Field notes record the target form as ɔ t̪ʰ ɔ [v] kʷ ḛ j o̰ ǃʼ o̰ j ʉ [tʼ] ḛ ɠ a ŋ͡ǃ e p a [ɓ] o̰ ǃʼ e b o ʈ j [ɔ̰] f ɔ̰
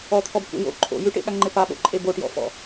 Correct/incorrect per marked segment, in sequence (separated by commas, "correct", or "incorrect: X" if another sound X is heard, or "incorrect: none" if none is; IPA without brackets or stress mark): incorrect: b, incorrect: ʈ, correct, correct